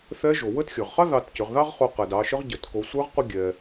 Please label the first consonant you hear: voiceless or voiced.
voiceless